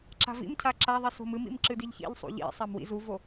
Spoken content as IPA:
ǁ a̤ v ḭ m cʰ a ǁ a ðˤ i s o̤ m ɨ m ḭ m ǁ ɨ d i ʎ ç ḭ ʎ sˤ ṵ ʎ ḭ sˤ a m w ḭ z u v o

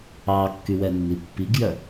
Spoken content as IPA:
ɑ kː y w ɛ nː i pː i ɡ j œ

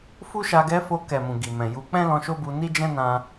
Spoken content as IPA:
f u˦ ʃ a˧ ɡ ɛ˧ f o˧ k ɛ˨ m ũ˨ ɡ i˨ m ɛ̃˨ j u˧ k͡p ɛ̃˦ l ɔ̃˧ ʃ o˦ b u˧ n i˦ d͡ʒ ɛ̃˦ n ã˧

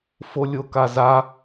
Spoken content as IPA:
f o lʲ o k a z a

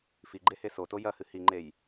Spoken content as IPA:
f i ɡ͡ǃ e h e s o t o j ɐ h ɨ h i ŋ͡ǃ e j

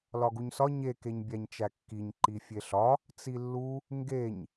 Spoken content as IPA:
l ɒ ɡ u ɲ s ɒ ɲ e k e ɲ bʲ æ ɲ t͡ʃ æ kː i ɲ ǃ i fʲ e ɬ ɒ | t͡s i lː u | ŋ ɡ e ɲ

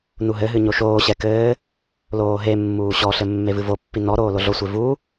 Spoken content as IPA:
n u ɦ ɘ ɦ ɨ ɲ o ʃ oː ɕ ɛ k ɘː | l oː ɦ e mː uː ɕ ɔ ɬ ɘ mː e v ɨ v o pː i n ɔ ɾ oː l o ɮ o sʷ e v u

